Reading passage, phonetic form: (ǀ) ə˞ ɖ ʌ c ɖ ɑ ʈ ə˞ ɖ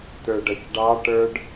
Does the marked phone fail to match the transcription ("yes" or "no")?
yes